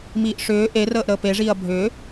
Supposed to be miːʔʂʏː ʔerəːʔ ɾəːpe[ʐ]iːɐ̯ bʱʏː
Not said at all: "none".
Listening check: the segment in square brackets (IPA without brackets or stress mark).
ʐ